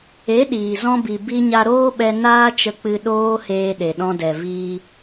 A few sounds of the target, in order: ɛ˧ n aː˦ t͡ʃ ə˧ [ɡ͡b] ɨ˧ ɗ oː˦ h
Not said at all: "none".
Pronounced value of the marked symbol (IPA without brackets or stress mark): k͡p